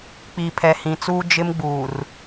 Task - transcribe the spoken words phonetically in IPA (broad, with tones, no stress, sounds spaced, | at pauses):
k͡p i˨ pʰ ɛ˨ h ĩ˨ t͡s uː˦ d͡ʒ ɪ˦ m ɡ͡b uː˨ r